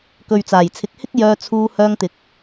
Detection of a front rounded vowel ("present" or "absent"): present